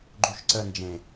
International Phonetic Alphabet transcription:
ɡ͡ǃ u ʃ ǀ ə n d͡ʒ ẽ

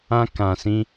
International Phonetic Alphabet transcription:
ã˧ k ã˨ s ĩ˧

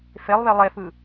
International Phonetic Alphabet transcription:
f e lˠ β e lˠ e f ɯ

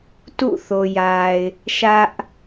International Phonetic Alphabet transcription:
t ṵ˦˨ θ o˨ j a˨ ɪ̯ | ʃ ä˦ ʔ

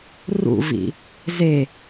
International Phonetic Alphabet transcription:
r ṵ v ḭ | z e

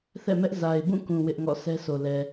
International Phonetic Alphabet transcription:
θ ɛ̰˦˨ m ɛ˦ ʔ z a˨ ɪ̯ b ũ˦˨ k ũ˨ w ɪ˦ ʔ ŋ ɔ̰˦˨ s ɛ˦ sʰ o˨ l ɛ˨

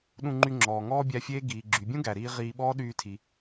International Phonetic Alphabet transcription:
ɗ ũ˧ ŋ͡ǃ y˧ ŋ͡ǁ ɔː˩ ŋ ɔː˥ bʲ æ˧ fʲ eː˥ ɡ iː˩ ɡ͡ǁ y˩ bʲ ũ˥ ɡ æ˩ ɾ iː˧ ʁ iː˧ ɓ ɔː˥ ɗ yː˧ tʰ i˩

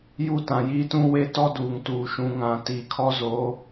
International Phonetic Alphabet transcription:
j u˦˨ t ã˨ j iː˦ t ũ˦ w e˦ t ɔ˦ d uː˨ ŋ t uː˨ ʃ ũ˨ ŋ ã˨ t iː˨ kʰ ɔ˦ z oː˨˦

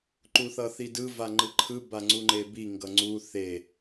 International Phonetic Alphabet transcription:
ǃ u θ ʌ θ i d ɯ v a ŋ͡ǃ ɯ ǃʰ ɯ b a ŋ͡ǀ u ŋ͡ǃ e b i ŋ ɡ ʌ ŋ͡ǀ u θ e

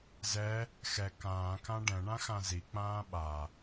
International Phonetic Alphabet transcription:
z ɛ | x ɛ k ãː k ã ɖ ɛ̃ ɳ ã x ã z i k͡p ãː ɓ a

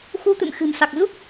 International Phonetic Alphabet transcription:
x u˧ t̪ ɨ̰˧˨ m x ɨ̤˨˩ m s a˨˩ k̚ z u˦˥ k̚

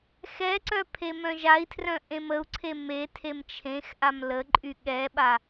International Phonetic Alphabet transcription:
x ɛ ǀ œ pʰ e m œ̃ ʒ a i̯ tʰ r œ̃ ʔ ẽ m ə u̯ ǀʰ e m e tʰ e m t͡ʃʰ ẽ x ʔ a m l ə ǃʼ y ɠ ɛ ɓ a

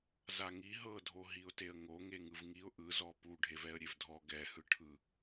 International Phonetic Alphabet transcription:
z a ŋ i ɦ ɤ dʱ o ɦ i ʊ̯ t e ə̯ ŋ o ŋ e ŋ ɯ v ŋ i ʊ̯ ʔ ɯ z ɔ p u ɖʱ e v ɛ ə̯ ɾʲ e v dʱ ɔ ɡ ɛ h ɯ ʈʰ ɯ

